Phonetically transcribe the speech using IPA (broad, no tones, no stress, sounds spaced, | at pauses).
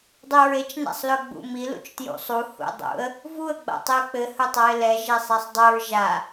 dˤ i ɹ e t͡ʃ n a̰ sˤ l ɵ ɡ͡b ṵ m i l ṵ t͡ʃ t j ṵ sˤ u h ṵ dˤ ṵ ə̯ | v u ə̯ ɡ͡b a̰ tˤ i ə̯ k͡p ɘ h ɵ tˤ a ɪ̯ l ɛ ʒ e sˤ ɛ sˤ dˤ ɵ ɹ ʒ a